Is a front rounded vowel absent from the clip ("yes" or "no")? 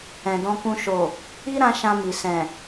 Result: yes